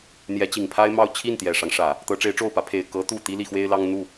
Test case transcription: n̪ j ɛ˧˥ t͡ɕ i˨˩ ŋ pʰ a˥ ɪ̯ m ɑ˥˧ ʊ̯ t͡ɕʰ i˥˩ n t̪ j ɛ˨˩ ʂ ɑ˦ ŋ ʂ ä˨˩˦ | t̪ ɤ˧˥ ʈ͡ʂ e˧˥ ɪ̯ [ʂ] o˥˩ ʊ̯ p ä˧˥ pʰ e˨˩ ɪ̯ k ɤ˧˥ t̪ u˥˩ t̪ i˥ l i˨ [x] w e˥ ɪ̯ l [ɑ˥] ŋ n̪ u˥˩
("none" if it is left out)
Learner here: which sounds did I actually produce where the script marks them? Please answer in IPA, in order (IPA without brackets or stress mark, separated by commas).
ʈ͡ʂ, x, ɑ˥